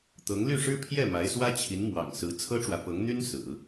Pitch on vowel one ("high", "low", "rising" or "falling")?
rising